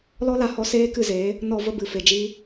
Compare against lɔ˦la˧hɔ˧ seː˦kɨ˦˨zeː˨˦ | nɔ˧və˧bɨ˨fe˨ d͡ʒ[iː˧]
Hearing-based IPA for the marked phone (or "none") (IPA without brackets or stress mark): iː˦